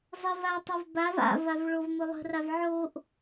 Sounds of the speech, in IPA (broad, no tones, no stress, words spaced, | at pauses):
zˤə vatˤəv bav a̰vav ɭovmʊlˠə̤rav ʕoʔ